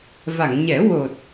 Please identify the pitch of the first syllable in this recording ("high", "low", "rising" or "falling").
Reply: low